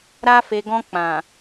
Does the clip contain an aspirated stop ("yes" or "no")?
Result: no